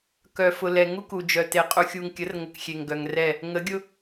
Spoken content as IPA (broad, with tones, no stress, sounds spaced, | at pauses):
k œ˨ f ʊ˨ l ɛ˨ ŋ u˦ k u˨ d͡ʒ œ˨ t e˨ qʼ u˨ xʲ u˨ ŋ kʲ ə˨˦ r ŋ ə˨ k xʲ e˨ ŋ ɡ œ˨ ŋ r ɛ˦˨ | ŋ ə˨˦ ɡʲ ʊ˦